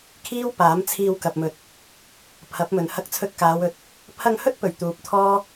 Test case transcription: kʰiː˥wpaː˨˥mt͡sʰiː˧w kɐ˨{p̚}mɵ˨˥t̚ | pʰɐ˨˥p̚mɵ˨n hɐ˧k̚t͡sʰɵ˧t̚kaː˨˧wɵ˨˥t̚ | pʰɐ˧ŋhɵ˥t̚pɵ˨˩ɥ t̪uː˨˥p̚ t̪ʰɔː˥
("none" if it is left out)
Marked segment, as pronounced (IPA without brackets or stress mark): p̚